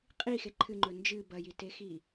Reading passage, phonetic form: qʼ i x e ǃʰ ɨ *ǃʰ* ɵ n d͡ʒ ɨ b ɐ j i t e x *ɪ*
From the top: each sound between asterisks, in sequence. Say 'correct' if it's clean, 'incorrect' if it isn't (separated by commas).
incorrect, incorrect